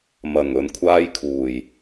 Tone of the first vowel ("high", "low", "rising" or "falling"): low